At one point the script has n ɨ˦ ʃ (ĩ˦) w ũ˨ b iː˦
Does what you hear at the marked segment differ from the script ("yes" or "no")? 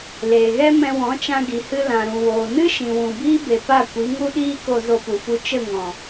yes